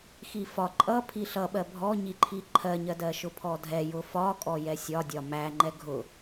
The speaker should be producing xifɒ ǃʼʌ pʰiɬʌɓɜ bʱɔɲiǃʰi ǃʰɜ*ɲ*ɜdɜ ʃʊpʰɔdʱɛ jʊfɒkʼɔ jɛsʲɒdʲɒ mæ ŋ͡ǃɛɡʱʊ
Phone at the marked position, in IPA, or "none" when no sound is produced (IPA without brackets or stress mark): ɲ